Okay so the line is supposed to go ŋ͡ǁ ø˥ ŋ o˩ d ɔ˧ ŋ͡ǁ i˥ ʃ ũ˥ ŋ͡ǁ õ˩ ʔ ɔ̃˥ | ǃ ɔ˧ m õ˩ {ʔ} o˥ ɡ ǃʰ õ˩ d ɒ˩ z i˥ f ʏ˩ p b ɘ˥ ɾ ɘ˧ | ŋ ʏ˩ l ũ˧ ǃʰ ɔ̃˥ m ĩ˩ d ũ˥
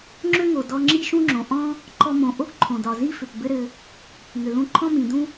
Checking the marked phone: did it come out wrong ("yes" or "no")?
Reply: no